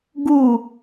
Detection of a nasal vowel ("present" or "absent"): absent